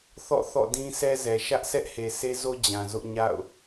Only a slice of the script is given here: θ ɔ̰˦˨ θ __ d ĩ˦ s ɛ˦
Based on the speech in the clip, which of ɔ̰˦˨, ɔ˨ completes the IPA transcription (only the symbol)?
ɔ̰˦˨